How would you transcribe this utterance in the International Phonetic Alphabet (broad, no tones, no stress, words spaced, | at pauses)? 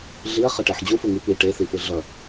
ɮiɐ̯χʌʈɛħ d͡ʑufuŋi pi ʈeθifɯ ɮʌ